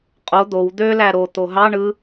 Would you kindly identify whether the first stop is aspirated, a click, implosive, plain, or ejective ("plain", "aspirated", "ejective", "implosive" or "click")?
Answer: ejective